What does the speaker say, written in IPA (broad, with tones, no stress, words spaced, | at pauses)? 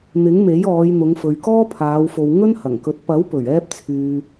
n̪ɪ˨˥ŋme˨˥jɔː˨˧jn̪ʊ˨˧ŋ fɵ˨ɥkɔː˥pʰaː˨˧wfo˨w ŋɵ˥nhɐ˨˩ŋkɵ˨˥t̚ pɐ˨˥wpɵ˨˩ɥɛː˧p̚t͡sʰyː˨